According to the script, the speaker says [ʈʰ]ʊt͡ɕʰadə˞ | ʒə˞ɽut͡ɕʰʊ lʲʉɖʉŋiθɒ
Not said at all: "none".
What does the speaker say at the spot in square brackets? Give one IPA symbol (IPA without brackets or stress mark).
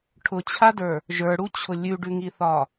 ʈʰ